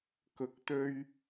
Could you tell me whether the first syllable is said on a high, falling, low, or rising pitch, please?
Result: rising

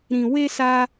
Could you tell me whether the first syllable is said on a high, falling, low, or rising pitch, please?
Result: low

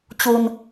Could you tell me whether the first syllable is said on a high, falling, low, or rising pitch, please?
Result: low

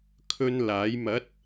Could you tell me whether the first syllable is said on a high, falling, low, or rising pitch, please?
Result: high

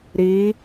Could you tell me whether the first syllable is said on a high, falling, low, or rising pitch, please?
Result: rising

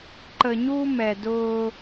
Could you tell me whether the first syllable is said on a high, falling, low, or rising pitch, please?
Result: low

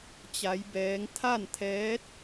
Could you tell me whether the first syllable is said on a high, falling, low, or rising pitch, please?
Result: rising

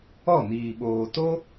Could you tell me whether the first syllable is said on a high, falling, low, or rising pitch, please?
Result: falling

